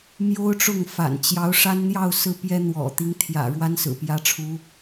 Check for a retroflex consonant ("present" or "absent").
present